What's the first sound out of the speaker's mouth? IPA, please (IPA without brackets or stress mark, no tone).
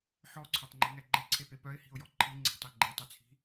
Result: ħ